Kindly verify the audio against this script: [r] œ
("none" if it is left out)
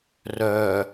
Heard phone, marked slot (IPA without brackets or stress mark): r